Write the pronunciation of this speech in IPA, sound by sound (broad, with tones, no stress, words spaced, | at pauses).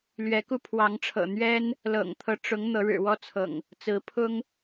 lɥɛ˨˦ku˧pʰwɑ˨˦ŋʈ͡ʂʰɤ̰˨˩ n̪ɥɛ˦n | lɤ̰˨˩ŋt̪ʰɤ˦ʈ͡ʂʊ˨˦ŋ n̪ɤ˨˦ɻɻ̩˨˩wɔ˦t͡sʰɤ̰˨˩ŋ | t͡sɹ̩˨˦pʰʊ˦ŋ